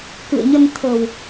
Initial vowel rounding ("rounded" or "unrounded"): unrounded